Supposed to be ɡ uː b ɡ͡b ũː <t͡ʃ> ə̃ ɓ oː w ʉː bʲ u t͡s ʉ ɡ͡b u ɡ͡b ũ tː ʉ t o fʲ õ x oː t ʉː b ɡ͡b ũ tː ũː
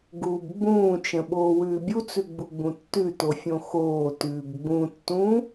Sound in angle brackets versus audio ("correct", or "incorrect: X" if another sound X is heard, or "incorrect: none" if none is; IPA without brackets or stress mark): correct